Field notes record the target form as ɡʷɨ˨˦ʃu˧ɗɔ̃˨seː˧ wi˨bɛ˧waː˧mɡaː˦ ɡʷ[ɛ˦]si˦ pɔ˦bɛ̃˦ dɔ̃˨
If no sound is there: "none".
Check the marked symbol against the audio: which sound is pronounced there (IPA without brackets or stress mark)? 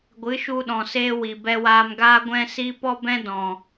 ɛ̃˦